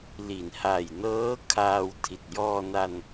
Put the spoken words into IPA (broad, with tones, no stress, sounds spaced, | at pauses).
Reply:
l i˩˦ n h a˨˩ j n ɤː˦˥ kʰ aː˧ w tʰ i˨˩ t̚ j ɔː˧ n a˧ n